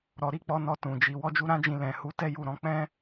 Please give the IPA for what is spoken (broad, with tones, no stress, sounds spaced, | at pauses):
ɾ ɔ˨ ɾ i˨˦ k͡p ɔ˧ n ɔ˧ t ũ˨ d͡ʒ i˧ w ɔ˧ d͡ʒ u˧ ɾ ã˦ d͡ʒ ĩ˧ l ɛ̃˨ h u˨˦ t ɛ˦ j u˧ ɾ ɔ̃˧ k͡p ɛ̃˦